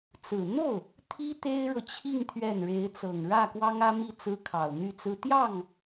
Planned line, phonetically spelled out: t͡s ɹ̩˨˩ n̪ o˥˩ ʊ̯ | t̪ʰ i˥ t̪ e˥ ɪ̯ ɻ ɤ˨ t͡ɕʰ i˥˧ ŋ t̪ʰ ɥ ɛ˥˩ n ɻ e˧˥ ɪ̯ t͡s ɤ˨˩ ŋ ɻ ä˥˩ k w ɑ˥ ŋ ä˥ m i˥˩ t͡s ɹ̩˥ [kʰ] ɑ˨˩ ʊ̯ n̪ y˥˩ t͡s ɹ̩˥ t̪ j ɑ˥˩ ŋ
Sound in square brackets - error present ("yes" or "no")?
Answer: no